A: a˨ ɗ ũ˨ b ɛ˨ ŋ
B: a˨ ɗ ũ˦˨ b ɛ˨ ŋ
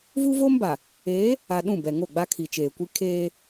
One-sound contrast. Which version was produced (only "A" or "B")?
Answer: B